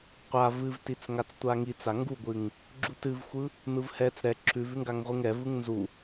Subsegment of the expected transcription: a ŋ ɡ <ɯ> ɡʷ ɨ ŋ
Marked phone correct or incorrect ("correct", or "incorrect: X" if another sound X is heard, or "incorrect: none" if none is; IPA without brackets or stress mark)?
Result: incorrect: u